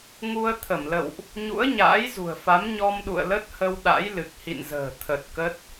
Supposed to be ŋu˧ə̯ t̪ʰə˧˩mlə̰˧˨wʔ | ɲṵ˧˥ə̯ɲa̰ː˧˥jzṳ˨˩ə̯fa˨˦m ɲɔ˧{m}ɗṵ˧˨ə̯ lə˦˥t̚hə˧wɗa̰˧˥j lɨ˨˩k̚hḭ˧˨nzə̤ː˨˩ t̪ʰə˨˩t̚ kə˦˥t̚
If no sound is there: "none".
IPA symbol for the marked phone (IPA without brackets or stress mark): m